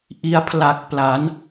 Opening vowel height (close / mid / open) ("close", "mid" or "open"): close